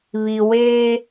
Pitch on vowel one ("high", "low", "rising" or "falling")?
low